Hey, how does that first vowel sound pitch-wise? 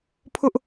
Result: high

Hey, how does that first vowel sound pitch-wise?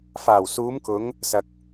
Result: low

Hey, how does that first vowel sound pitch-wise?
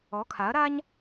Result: rising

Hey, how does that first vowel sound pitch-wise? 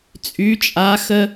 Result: rising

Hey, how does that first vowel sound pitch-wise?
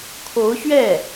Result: rising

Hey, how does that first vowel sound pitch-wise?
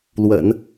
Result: low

